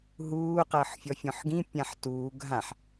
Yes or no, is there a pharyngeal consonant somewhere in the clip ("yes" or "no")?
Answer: yes